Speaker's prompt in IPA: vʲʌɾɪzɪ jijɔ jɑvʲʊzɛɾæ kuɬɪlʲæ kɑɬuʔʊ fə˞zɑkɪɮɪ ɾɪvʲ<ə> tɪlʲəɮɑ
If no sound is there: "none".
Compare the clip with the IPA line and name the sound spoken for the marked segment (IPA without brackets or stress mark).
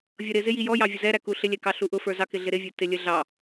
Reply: ə˞